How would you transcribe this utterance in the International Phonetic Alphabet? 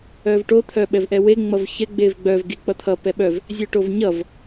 œ v ʈ o t̪ʰ œ ɓ ɛ v ʔ ɛ w e ŋ͡m ʌ v ç ɛ ɡ͡b e v ɡ͡b œ v ɡ i k͡p ʌ t̪ʰ ʌ p ɛ ɓ œ v | zʲ œ ʈ o v ɲ ʌ v

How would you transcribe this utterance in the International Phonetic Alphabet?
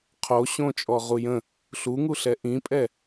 qʰ o ɕ õ t͡ʃʼ ɔ ʁ u j ə̃ | ɬ u ŋ u ɬ ɛ ʔ ĩ pʼ ɛ

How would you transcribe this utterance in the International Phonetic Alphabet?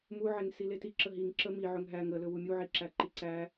m u ʕ e ŋ s i l e t i ǁ ə ɦ i ŋ ǁ ə m i ʕ ɵ ŋ ɦ æ ŋ ə l ɵ w u mʲ u ʕ i ǁ æ ǃ i ǀ æ

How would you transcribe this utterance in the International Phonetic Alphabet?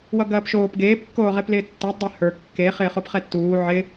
w ʌ ɡ ɐː p ʃ oː p ɡ eː p kː oː ʁ e p l ɪː tː ɛ dˤ ɛ h ə˞ kː e χ ɪː χ o p χ ɛ tː uː ʕ ɪ

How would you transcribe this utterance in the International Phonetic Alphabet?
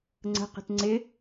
ŋ͡ǀ ə̤ q ə̤ t ŋ͡ǀ ɪ

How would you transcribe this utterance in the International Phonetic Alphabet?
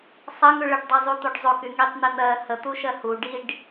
sˤ ɐ ŋ ʉ ɭ ə ɖ dˤ e zˤ u t̪ o ɖ zˤ o k y ŋ i tˤ n̪ i n̪ ɜ h ə t̪ u ʃ ɜ h u ɖ i ɖ

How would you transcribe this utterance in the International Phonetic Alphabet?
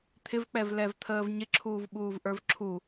t̪ʰ ɪ v k͡p ɛ v l ɛ v t̪ʰ əː v ɲ ɪ ǁʰ uː v ɓ uː v ʔ ə˞ v ǁʰ u

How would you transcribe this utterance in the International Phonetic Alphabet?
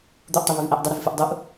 d̪ u ʔ tˤ i β ʉ v ʔ ɛ ʔ dˤ ɪ ɾ ɨ v f ɨ ʔ dˤ u ʔ

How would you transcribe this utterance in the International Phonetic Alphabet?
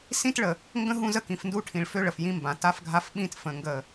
s ĩ˦ t ɭ ə˨ | ŋ ɡ ə̃˦ ɦ ũ˦ z ə˦˨ k ĩ˨ f n d u˦ ʈʰ ĩ˨ ɭ f ø˦ ɭ ə˨ f j ĩ˦ m b ã˨ t a˦ f ɡʱ a˦ f ɓ ĩ˦ t f ə̃˨˦ ŋ ɡ ə˦˨

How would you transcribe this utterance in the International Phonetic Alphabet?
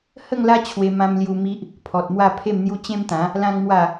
h ə˥˧ ŋ l a˦ t͡ɕʰ w e˧ m ã˧ m l j u˧ m i˦ ʔ | pʰ ɔ˨ t̚ m w a˥˧ pʰ e˥˧ m n̪ j u˦ t͡ɕ ẽ˦ m t̪ ã˨˦ | l ã˦ ŋ m w a˥˧

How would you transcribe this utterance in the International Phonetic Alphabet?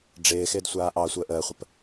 ɖ͡ʐ ɪː x ɪː d sʷ aː ʔ ɑ sʷ əː ʔ əː χʷ ə p

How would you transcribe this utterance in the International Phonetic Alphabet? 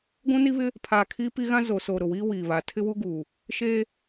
ɡʷ ũ˦ n i˦ β ɪ˦ | pʰ aː˨ kʰ iː˦ p i˦ ɣ ã˦ z o˨ s o˨ ɾ ʊ˨ w iː˦ w iː˨ β a˨ tʰ ɪ˦ w u˦ ɡ uː˨ | ʃ eː˦

